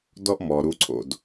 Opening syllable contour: high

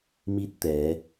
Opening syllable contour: falling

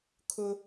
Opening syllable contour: high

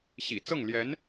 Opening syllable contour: low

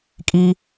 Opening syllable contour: high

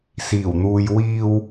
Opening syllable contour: low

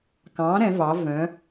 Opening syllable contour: rising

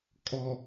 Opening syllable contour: low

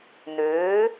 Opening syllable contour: rising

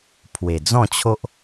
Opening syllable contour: low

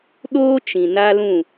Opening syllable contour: high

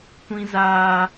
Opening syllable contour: high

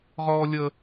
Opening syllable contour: high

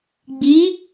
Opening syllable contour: rising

